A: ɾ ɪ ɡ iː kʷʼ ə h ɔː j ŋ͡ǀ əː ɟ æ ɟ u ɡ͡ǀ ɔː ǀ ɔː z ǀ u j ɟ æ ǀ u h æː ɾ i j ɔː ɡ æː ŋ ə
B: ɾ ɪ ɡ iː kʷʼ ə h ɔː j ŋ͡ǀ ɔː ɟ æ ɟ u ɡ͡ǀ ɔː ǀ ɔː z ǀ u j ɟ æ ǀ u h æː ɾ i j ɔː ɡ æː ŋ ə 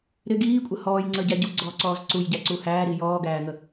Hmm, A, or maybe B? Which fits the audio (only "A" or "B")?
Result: A